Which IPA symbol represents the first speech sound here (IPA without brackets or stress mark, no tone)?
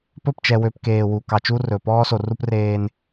p